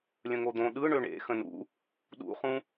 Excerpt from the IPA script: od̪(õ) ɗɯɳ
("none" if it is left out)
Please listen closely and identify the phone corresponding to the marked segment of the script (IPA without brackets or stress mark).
õ